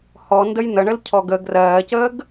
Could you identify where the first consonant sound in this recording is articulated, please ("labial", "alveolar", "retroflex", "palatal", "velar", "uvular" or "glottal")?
glottal